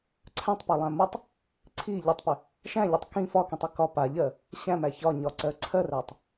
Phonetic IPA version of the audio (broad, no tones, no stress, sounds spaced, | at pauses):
ǀʰ æ̃ tˤ p a lˠ æ̃ m ə tˤ | ǀʰ i ʎ ʏ tˤ p ʏ | ʃ æ̃ ʎ i tˤ k ĩ f ɒ k ĩ tˤ i k ɒ p a ʎ ɜ | ɕ æ̃ m æ ç ɒ ɲ ɒ ǀ ɜ ǀʰ ɜ r æ tˤ